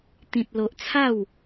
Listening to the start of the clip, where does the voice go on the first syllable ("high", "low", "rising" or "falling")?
high